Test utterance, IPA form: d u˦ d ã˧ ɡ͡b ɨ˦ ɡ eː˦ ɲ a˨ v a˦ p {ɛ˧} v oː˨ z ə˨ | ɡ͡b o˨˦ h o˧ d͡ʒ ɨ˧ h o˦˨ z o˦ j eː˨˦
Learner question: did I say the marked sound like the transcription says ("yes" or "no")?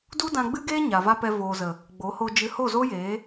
yes